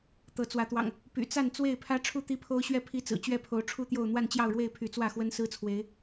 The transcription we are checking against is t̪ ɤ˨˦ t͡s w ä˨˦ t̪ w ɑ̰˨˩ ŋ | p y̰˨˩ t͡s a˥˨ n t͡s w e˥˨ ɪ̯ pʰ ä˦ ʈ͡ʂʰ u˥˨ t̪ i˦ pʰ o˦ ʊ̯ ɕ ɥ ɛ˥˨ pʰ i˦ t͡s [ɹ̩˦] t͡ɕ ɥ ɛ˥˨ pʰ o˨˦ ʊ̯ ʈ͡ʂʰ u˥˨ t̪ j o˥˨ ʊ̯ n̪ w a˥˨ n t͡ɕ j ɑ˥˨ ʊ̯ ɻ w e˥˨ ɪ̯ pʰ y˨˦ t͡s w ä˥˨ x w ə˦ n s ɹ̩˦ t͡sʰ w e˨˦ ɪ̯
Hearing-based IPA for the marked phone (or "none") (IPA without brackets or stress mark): ɹ̩˨˩